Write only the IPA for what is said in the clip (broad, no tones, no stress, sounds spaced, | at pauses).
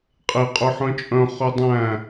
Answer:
qʼ e qʼ ø ħ œ̃ t͡ʃʼ œ̃ χ ø dˤ æ̃